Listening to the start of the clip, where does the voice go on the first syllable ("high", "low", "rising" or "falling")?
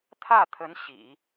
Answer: falling